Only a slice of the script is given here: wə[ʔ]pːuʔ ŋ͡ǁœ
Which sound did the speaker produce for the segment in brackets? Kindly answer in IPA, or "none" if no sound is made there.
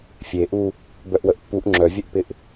ʔ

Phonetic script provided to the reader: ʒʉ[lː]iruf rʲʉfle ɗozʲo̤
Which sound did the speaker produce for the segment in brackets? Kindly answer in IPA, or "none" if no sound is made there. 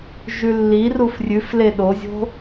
lː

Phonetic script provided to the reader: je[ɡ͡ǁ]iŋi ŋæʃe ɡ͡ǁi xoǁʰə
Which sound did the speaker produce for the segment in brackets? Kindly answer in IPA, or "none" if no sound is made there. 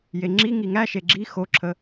ŋ͡ǁ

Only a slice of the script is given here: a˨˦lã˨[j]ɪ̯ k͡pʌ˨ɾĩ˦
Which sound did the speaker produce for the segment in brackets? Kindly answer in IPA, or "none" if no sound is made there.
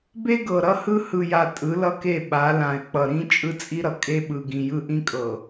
none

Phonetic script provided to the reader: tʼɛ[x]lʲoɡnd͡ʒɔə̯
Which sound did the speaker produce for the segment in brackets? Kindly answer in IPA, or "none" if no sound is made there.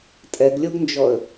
ɡ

